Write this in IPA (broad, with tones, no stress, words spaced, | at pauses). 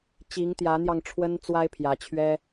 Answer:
t͡ɕi˨˦ŋt̪jä˨˦n̪jɑ˧ŋ ʈ͡ʂʰwə˦nt͡swa˦ɪ̯ pʰjä˨˦t͡ɕʰɥɛ˦